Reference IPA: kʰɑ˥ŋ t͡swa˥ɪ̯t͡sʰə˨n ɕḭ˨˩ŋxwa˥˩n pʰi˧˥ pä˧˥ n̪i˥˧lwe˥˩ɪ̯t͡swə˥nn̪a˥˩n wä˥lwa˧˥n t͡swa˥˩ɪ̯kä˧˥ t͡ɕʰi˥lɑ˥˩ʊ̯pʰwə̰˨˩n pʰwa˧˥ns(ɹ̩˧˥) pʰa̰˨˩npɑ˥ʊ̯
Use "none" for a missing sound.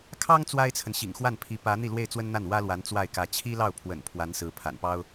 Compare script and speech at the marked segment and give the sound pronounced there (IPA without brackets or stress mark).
ɹ̩˧˥